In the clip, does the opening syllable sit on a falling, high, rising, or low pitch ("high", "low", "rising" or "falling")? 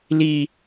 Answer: high